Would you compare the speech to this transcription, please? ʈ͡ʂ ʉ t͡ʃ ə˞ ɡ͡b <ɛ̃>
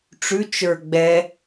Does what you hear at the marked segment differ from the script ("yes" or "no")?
yes